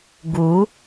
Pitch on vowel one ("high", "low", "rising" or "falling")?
rising